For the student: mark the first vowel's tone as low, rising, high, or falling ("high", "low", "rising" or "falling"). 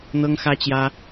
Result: high